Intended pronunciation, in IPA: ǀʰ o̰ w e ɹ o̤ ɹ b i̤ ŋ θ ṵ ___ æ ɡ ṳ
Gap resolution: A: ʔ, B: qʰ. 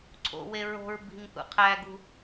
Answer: B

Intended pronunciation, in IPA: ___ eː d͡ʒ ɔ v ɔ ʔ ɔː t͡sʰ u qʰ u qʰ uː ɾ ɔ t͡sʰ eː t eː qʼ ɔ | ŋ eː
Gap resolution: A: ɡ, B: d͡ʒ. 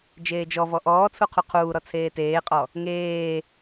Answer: B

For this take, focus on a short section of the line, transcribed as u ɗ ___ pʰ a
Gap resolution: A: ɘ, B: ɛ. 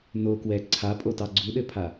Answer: A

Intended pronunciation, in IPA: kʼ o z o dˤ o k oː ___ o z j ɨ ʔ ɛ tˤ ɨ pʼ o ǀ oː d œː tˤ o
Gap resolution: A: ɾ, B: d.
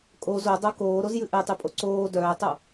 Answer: A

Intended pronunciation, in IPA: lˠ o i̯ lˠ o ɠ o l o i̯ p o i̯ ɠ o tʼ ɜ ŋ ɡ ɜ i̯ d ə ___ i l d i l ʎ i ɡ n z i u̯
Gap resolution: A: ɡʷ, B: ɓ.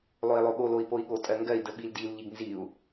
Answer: B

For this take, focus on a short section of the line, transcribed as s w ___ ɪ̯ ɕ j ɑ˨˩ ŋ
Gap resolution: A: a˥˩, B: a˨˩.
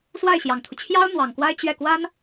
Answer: A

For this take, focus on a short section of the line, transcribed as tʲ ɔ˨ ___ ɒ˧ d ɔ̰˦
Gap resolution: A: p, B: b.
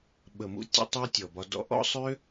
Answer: B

